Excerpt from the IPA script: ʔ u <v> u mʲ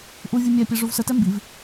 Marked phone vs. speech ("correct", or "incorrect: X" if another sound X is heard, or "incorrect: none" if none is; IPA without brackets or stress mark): incorrect: vʲ